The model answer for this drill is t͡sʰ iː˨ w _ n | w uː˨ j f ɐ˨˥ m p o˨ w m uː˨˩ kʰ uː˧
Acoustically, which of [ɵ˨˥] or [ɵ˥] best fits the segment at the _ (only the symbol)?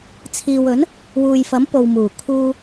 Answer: ɵ˨˥